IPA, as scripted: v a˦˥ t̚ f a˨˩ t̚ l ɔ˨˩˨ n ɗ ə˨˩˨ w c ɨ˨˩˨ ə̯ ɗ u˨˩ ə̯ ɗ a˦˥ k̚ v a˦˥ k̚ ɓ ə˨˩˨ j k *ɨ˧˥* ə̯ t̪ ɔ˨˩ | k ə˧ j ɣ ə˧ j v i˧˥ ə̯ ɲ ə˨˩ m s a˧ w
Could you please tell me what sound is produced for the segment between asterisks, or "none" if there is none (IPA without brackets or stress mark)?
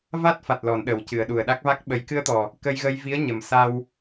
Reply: ɨ˧